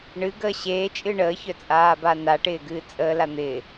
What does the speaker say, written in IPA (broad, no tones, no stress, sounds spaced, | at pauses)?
ɳ ɨ ɡ əː ɕ eː t͡ʃʼ ɨ ɳ əː ç œ t͡sʼ aː b a n a ʈ ɪː ɡ ɨː t͡sʼ əː l a n̪ ɪː